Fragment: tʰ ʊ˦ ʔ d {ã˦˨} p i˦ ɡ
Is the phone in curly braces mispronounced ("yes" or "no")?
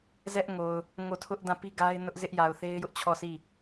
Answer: no